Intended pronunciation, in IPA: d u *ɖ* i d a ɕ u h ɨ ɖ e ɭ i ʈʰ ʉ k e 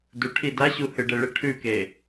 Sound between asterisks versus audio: incorrect: ʈʰ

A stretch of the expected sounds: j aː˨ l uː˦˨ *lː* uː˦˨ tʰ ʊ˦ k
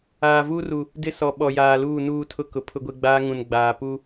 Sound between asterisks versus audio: incorrect: n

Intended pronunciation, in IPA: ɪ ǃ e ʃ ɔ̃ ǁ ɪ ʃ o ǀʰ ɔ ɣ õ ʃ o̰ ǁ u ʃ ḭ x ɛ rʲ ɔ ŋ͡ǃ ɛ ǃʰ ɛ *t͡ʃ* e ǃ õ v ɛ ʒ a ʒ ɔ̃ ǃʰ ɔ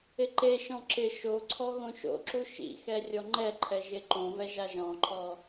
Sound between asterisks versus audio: incorrect: ʒ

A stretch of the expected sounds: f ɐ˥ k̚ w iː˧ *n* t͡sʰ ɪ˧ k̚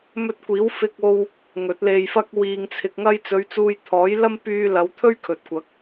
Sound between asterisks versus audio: incorrect: ŋ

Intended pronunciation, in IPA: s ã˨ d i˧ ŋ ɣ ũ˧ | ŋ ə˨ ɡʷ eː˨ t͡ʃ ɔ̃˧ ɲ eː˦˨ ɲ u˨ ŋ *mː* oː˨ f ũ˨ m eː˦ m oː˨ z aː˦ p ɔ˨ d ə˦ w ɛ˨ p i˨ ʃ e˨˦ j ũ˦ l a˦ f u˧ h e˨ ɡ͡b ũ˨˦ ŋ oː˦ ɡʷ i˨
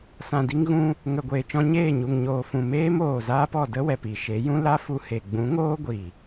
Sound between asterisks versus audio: incorrect: ɲ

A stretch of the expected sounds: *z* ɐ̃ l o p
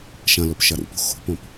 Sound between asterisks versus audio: incorrect: ʃ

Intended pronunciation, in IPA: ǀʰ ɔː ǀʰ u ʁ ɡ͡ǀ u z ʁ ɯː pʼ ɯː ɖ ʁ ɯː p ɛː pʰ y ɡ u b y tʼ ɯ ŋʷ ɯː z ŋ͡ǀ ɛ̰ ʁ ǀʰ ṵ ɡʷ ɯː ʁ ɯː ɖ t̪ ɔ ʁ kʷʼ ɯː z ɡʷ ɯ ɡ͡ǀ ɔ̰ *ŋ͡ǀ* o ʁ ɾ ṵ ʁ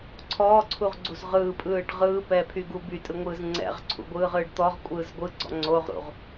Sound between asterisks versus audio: correct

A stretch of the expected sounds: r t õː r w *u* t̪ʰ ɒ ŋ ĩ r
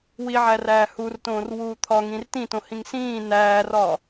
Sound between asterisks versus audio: incorrect: uː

